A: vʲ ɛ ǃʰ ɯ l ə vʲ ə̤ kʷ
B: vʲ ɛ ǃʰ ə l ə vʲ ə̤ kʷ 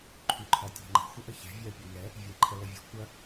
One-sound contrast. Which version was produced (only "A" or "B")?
B